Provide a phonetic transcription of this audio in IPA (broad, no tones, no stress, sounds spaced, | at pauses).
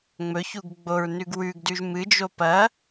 ŋ͡m ɵ ç u ɡ ɡ͡b o ɹ n ʉ ɡ w ʉ ɡ d ʉ ʒ m ɨ d͡ʒ o p ɐ